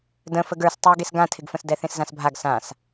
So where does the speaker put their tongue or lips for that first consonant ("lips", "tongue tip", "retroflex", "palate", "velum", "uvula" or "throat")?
tongue tip